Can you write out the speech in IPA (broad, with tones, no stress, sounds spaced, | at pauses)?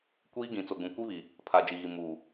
kʷ iː˦ ɡ ĩ˨ t͡s o˨ ɡ ũ˨ kʷ i˦ β i˨ | pʰ a˨ d͡ʒ i˨ ɣ i˨ m uː˨